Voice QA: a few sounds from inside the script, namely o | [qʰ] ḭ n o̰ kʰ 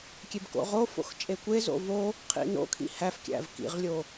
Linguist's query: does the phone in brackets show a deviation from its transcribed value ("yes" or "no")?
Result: no